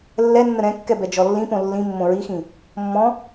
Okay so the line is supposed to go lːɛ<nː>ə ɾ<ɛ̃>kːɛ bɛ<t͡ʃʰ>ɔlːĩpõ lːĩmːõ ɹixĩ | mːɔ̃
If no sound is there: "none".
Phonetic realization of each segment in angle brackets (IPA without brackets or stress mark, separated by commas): nː, ɛ̃, d͡ʒ